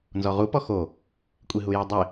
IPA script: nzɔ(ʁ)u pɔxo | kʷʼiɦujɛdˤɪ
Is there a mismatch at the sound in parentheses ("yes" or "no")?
no